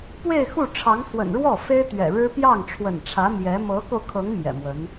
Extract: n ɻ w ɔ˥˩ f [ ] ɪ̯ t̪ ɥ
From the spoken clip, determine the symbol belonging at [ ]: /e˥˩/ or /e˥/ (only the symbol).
e˥